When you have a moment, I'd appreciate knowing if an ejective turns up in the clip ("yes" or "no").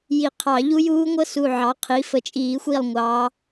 yes